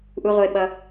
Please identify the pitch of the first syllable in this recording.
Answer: high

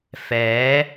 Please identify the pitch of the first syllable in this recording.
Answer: rising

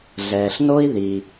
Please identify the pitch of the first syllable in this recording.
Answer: low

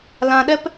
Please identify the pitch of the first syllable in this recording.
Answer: low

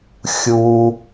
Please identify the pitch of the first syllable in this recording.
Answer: low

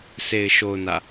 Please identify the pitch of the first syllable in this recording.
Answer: low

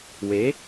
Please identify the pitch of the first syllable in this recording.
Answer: rising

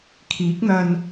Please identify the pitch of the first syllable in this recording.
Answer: rising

